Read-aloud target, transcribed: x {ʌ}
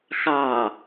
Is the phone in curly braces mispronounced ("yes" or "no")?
yes